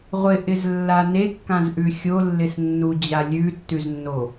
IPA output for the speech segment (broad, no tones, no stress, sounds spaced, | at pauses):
ʁʷ ɪ ʔ ɪ z lː a n e kː ã z ʔ ʉ xʲ o lː ɪ s nː u d͡ʑ a lʲ ʉ tː ʉ z nː o